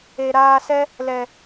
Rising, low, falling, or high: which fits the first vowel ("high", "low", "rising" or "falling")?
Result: low